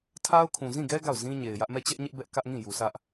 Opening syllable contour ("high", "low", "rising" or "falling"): high